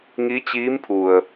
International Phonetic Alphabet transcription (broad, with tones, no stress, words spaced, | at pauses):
ŋi˧˥t͡ɕiː˧˥mpʰu˩ə̯